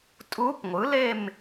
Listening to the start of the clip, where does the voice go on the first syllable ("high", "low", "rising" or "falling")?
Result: rising